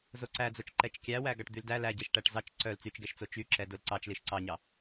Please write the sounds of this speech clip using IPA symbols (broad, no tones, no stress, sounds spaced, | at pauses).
z o ǀ æ d͡z o t͡ʃ ǃ ɛ t͡ʃ kʲ æ w æ ɡ ɑ ʈ d̪ y l d æ l æ ɟ ɛ ʃ ʈ æ ʈ z ɑ t͡ʃ ǀ œ l t͡s y t͡ʃ ɡ ɛ ʃ t͡s o t͡ʃ y ǁ ɛ d o l ǀ ɑ t͡ʃ l i ʃ ǀ ɑ ɲ ɑ